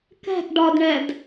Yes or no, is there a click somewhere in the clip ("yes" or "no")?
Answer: no